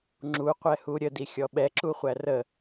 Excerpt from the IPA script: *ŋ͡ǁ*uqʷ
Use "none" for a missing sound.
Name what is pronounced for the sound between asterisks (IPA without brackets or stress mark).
ŋ͡ǁ